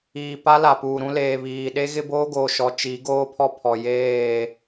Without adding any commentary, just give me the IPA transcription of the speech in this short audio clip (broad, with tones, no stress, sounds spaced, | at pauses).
iː˨ p a˦ l a˨ p uː˨ ɾ ũ˦ l eː˨ β iː˨ ɗ e˦ ɣ ɪ˦ b oː˦ ɡ oː˨ ʃ ɔ˨ t͡ʃ i˨˦ ɡ oː˦ pʰ ɔ˦ pʰ ɔ˨ j eː˦˨